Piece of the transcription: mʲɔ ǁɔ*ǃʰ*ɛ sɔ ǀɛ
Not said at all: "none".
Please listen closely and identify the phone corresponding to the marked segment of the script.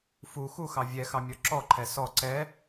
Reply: ǃʰ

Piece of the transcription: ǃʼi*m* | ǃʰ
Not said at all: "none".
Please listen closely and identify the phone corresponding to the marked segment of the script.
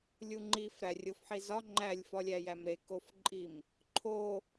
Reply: m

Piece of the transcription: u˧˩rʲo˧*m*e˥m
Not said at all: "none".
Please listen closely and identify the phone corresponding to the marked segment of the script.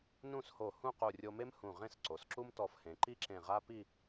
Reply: m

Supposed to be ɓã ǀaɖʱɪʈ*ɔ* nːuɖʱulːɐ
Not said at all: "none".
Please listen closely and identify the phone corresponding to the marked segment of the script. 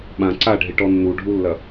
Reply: ɔ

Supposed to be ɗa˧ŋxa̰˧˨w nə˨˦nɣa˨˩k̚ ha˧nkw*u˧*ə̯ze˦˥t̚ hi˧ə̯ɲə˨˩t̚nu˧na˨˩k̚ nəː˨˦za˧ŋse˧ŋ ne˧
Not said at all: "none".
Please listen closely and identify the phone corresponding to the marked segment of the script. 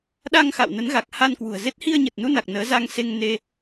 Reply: ṳ˨˩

